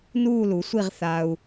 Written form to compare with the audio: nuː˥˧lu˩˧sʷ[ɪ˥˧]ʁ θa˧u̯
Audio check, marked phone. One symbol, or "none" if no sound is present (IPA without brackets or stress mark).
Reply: i˥˧